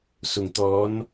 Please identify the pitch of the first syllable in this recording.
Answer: low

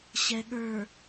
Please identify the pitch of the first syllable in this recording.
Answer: low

